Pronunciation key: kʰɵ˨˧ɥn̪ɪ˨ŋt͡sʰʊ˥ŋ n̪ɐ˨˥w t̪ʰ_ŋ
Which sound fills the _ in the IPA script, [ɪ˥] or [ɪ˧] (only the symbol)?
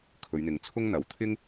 ɪ˥